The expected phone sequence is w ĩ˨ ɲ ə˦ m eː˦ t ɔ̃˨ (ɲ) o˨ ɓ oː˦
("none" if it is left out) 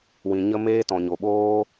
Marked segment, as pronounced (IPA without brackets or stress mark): ɲ